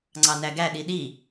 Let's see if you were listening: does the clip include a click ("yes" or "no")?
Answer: yes